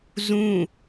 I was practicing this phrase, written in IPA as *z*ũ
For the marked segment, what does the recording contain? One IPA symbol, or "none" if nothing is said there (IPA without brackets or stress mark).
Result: z